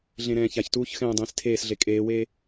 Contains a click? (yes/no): no